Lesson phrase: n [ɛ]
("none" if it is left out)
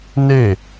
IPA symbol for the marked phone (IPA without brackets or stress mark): e